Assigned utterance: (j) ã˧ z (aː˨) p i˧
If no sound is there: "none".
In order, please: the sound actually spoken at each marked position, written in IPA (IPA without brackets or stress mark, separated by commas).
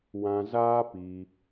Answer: w, aː˦